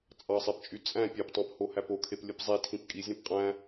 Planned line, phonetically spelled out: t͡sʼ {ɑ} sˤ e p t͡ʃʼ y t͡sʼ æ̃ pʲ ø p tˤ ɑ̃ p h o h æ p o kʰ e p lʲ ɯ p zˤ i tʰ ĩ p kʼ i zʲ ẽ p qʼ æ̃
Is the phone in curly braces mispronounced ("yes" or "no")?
no